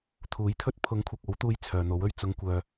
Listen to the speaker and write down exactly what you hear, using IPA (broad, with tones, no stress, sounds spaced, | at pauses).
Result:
t̪ʰ uː˨˥ j t̪ʰ ɵ˥ t̚ pʰ ʊ˨˥ ŋ kʷʰ ɐ˨ k̚ o˨˥ w t̪ uː˧ j t͡sʰ œː˨ n̪ o˨˥ w ɵ˥ ɥ t͡s ʊ˨˧ ŋ kʷ œː˨